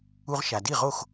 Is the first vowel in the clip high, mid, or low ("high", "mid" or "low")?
high